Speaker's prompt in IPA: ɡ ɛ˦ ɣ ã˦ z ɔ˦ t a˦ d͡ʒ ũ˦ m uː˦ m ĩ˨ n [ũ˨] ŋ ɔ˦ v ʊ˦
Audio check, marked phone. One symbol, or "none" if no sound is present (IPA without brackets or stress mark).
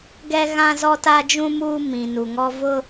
u˨